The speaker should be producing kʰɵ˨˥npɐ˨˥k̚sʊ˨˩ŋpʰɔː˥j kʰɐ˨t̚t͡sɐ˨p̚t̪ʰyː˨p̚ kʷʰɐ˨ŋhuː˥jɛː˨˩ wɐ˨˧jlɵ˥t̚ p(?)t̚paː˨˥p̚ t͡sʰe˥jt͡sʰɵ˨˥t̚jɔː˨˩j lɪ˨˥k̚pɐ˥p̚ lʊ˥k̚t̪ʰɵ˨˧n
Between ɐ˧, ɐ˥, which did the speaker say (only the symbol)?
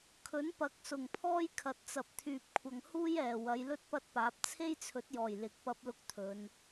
ɐ˥